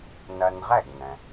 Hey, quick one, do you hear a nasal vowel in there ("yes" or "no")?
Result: yes